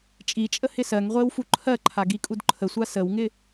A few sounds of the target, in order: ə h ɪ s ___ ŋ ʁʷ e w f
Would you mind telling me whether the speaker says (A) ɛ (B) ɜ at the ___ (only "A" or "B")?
B